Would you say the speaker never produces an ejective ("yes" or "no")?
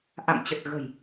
yes